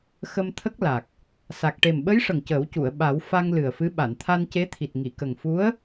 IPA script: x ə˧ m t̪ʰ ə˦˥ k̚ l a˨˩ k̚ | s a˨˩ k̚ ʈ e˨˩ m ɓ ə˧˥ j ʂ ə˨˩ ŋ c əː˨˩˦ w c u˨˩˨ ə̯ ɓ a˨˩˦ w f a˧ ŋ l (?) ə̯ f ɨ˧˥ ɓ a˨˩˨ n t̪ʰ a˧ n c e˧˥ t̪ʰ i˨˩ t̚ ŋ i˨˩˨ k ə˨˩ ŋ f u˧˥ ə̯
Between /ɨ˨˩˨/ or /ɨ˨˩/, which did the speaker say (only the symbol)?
ɨ˨˩